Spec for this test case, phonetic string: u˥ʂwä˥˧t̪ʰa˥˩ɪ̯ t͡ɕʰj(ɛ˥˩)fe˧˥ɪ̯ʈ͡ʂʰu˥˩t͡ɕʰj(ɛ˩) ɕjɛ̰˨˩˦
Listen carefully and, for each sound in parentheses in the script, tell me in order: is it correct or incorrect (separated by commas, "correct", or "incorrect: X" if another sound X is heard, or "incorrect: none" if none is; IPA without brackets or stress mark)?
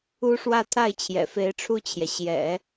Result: incorrect: ɛ̰˨˩, correct